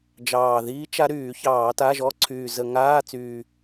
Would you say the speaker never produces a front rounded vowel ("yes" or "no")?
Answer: no